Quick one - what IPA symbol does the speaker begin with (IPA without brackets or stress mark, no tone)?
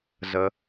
z